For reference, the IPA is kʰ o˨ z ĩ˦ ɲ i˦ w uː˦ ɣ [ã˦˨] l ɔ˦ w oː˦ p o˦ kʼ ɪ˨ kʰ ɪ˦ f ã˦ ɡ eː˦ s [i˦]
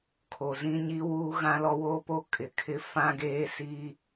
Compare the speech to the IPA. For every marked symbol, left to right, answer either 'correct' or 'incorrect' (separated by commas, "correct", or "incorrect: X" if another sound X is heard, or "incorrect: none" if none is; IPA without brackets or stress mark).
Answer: incorrect: ã˦, correct